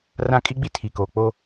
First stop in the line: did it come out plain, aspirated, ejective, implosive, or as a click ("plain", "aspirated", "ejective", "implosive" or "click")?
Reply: ejective